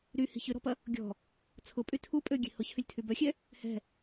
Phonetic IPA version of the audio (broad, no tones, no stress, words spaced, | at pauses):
ɾyhi̤ çʏɾɔ̤pɐ | ɡʲɔ̤ | t͡sʰʊpʼy tʰu pʼøɡʲe̤ hʊçhʏlʲtʰy bœxʲɛ | hɛ̤